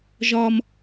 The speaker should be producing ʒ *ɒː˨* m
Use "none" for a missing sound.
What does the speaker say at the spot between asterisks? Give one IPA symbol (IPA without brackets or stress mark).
ɒː˨